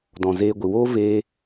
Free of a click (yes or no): yes